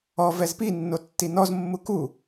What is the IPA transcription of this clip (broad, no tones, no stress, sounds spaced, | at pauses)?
ɔ v ɛ z p i nː o tː i n ɔ z mː u k u